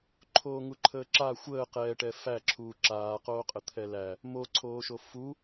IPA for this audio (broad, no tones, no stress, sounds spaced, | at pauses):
ǃʰ oː ŋ u ǃʰ əː ǁ a xʷ əː q ɛː ʈ ɛ f æ ǁʰ uː ǁ aː q oː qʼ ə t̪ʰ ɛ l æ | m o ǀʰ oː ʃ o f u